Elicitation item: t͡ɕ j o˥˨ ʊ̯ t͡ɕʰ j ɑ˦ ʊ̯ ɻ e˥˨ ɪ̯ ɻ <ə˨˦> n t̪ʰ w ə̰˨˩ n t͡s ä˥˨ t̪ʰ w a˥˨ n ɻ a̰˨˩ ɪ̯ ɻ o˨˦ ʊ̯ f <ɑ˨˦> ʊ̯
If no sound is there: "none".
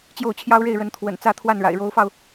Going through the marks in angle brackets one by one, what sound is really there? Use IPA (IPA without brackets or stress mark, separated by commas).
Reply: ə˨˦, ɑ˧